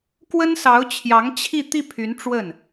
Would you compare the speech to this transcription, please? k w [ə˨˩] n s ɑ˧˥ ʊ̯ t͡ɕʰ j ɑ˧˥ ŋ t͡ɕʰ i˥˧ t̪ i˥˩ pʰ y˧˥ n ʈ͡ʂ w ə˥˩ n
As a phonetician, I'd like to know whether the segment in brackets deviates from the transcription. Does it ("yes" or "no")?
yes